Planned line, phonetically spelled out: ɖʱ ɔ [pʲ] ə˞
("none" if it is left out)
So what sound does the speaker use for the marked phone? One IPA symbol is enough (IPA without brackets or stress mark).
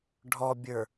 bʲ